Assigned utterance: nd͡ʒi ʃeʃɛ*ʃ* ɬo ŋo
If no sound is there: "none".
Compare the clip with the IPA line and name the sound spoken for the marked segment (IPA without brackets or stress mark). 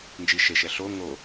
none